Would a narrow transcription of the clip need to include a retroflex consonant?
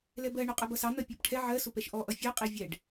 yes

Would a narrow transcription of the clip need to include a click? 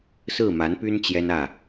no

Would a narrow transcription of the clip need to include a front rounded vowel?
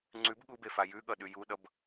no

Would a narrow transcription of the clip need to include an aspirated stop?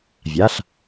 no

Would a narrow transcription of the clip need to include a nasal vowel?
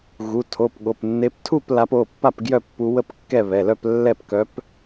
no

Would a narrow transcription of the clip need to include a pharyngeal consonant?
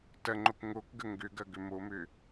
no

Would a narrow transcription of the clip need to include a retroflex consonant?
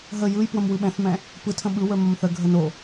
no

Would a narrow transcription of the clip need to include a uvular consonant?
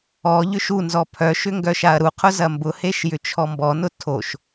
yes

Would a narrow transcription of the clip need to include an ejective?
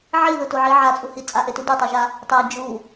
yes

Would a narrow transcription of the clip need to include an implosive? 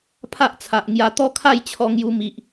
no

